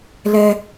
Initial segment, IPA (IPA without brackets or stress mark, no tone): l